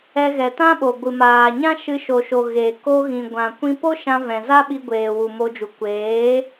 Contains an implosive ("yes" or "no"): yes